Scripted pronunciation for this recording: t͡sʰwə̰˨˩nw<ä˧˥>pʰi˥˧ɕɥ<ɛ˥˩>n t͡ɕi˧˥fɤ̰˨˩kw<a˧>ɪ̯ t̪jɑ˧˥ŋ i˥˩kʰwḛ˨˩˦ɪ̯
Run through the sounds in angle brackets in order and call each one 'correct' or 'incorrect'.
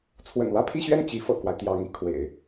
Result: incorrect: ä˥˧, correct, incorrect: a˦

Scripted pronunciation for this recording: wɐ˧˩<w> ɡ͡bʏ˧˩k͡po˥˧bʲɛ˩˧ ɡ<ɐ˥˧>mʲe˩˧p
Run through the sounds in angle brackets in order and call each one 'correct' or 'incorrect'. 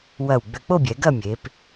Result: correct, correct

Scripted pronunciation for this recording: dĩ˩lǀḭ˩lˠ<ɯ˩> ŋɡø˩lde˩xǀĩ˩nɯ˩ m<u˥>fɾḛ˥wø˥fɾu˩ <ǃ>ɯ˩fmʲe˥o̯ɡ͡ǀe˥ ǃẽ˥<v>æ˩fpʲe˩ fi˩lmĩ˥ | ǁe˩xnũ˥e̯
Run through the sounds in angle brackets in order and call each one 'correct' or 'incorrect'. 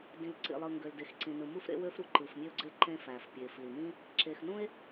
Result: correct, correct, correct, incorrect: f

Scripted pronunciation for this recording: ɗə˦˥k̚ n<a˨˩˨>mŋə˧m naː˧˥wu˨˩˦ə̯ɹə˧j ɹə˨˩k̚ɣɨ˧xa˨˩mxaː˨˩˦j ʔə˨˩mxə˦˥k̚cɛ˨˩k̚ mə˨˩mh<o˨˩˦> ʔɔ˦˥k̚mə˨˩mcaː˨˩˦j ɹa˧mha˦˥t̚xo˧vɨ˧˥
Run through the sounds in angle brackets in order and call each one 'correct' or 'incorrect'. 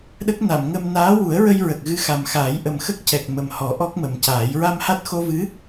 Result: correct, incorrect: ɔ˨˩˦

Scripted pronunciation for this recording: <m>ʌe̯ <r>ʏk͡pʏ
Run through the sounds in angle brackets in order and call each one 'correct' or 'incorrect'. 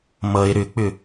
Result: correct, incorrect: ɾ

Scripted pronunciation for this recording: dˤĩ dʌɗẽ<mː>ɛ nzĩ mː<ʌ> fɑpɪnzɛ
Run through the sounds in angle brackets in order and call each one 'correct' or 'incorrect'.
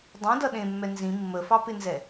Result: correct, incorrect: ə

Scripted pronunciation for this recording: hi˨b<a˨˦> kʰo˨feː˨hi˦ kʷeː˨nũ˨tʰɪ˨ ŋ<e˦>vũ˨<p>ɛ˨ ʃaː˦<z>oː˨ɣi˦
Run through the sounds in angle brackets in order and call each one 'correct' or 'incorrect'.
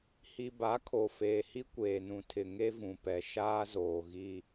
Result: correct, correct, correct, correct

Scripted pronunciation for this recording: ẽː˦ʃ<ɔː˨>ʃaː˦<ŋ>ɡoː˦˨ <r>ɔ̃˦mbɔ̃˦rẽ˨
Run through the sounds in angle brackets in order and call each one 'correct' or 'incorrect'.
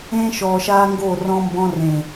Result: correct, correct, correct

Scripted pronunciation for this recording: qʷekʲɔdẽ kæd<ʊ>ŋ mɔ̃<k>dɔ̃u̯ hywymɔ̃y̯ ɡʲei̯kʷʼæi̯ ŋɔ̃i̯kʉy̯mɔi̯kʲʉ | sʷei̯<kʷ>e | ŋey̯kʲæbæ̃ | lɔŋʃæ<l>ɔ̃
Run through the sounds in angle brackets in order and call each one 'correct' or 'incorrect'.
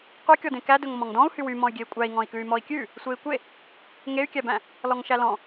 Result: incorrect: ɵ, incorrect: ŋ, correct, correct

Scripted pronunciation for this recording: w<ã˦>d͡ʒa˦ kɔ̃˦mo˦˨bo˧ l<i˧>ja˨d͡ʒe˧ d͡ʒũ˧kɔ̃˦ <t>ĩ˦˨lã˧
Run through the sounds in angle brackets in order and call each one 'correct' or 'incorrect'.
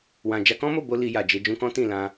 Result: incorrect: ã˧, correct, correct

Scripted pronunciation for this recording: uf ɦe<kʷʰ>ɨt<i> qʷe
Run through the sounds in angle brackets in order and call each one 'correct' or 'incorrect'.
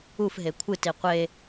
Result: correct, correct

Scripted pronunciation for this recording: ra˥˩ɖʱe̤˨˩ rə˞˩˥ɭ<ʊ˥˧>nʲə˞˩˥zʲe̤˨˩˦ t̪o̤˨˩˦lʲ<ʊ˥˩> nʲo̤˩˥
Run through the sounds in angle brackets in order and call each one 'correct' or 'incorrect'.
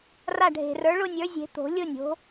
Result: correct, incorrect: ʊ˥˧

